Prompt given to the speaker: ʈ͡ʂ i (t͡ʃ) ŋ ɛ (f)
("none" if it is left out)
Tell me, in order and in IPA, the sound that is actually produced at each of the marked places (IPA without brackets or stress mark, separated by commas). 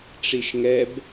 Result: ʃ, b